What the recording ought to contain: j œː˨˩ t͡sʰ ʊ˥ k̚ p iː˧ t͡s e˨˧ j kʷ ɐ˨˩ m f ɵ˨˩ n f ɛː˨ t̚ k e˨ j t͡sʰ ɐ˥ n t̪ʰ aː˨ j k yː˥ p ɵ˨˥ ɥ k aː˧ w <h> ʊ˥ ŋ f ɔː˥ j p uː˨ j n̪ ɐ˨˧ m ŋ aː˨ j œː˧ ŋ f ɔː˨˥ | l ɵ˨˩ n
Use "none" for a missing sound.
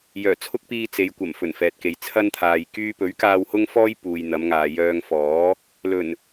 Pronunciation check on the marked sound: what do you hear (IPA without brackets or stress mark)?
h